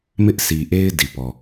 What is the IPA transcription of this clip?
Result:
m ɪ˦ ʔ s i˨ ʔ e˦ ɪ̯ d i˨ p ɔ˨

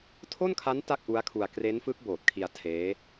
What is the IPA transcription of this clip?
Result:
tʰ o˥˩ n kʰ a˦˥ n t a˥˩ k̚ ʔ u˦˥ a̯ kʰ u˧ a̯ k r e˦˥ n f ɯ˦˥ k̚ b oː˨˩ t̚ kʰ i˧ a̯ tʰ eː˦˥

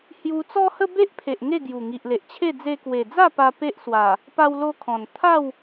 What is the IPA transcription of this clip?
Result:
h j u˧ t͡s ɔ˦ h ə˦ b e˦ ʔ pʰ e˨ ʔ ŋ e˥˧ ɡ j u˨˩ ŋ i˨ ʔ l e˨ ʔ t͡ɕʰ e˥˧ d͡z e˧ k w e˨˩ d͡z a˥˧ p a˦ p e˦ ʔ s w a˨˩ | p a˦ w l o˦ kʰ ɔ̃˨˩ n t̪ʰ a˥˧ w

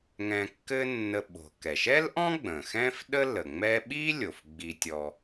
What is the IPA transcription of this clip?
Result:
ŋ ɛ̃˧ kː ɘ˥ nː ə˧ ɓ o̤˩ k ɛ˩ ʃ ɛ˥ l ʔ ɔ̃˥ ɡ͡b ə̃˩ x ɛ̃˥ f ɗ ə˥ l ə˩ ŋ͡m ɛ˥ ɓ i˥ lʲ o˩ f ɡ͡b i˧ tʲ ɔ˧

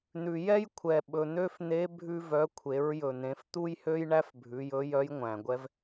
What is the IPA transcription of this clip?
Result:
n̪ ʉ˩ j ɛ˥ j kʷʰ ɛ˩ ɓ ɵ˩ n̪ ø˥ f n̪ e˧˥ bʱ ʉ˧ v œ˩˧ kʷʰ e˩˧ ɹ j ɵ˩ n̪ ẽ˩˧ f t̪ u˥ j h ø˥ j ɳ æ˥ f bʱ ʉ˩˧ j ɵ˧˥ j œ˧˥ j ŋʷ æ̃˩ ɡʷ ɛ˥ v

